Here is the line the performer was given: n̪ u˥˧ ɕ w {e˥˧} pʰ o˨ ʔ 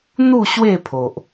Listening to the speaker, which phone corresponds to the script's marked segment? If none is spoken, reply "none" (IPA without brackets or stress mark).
e˥˧